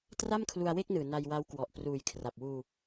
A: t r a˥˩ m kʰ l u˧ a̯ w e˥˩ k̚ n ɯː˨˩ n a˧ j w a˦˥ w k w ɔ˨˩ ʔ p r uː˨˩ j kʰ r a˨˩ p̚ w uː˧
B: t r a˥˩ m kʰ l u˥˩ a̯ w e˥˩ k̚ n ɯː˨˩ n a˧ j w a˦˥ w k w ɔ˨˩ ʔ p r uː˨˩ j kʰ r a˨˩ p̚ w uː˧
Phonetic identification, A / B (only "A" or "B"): A